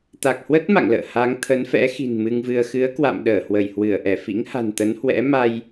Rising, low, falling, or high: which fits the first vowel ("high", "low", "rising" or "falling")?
low